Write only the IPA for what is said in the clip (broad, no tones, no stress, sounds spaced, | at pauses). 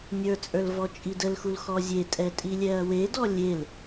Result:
nʲ ə˞ t͡sʼ ə˞ l v ɔ t͡ʃʼ i d ə l x u l x ɔ zʲ e tʼ ɛ tʼ i lʲ ɛ ɐ̯ w e d ɔ lʲ e l